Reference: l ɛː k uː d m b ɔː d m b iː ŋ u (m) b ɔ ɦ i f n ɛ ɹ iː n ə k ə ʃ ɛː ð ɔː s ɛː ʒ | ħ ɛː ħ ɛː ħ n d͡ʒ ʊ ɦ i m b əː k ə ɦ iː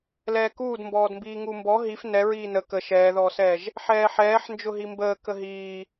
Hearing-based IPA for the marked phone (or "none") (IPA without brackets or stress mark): m